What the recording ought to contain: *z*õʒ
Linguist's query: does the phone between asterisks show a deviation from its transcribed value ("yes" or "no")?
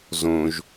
no